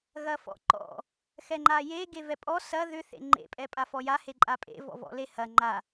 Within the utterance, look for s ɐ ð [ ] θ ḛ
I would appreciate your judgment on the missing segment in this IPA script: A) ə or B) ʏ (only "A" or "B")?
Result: B